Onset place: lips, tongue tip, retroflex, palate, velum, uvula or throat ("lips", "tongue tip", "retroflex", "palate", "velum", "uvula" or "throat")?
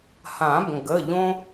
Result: throat